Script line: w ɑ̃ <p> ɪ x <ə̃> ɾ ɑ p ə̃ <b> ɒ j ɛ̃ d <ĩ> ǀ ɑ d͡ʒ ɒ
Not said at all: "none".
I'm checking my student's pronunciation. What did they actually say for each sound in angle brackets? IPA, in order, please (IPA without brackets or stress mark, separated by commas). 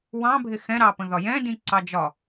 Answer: bʱ, ɛ̃, ð, ĩ